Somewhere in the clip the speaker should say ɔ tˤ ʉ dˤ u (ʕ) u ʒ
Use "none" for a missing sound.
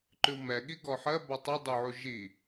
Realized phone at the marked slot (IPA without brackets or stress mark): ʕ